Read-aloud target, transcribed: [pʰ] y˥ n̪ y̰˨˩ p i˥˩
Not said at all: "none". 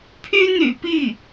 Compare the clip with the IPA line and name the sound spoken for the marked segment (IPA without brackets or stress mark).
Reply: pʰ